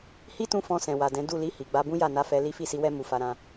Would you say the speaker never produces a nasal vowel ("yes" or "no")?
no